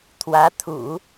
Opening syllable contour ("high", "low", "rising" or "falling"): rising